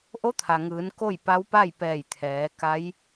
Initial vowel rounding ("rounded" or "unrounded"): rounded